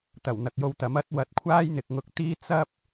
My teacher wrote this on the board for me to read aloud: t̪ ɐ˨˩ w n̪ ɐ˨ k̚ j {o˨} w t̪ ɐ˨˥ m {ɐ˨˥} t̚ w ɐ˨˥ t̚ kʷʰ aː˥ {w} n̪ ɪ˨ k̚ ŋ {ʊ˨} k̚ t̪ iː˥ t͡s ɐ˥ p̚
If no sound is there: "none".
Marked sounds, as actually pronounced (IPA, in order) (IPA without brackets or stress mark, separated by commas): o˧, ɐ˨˥, j, ʊ˨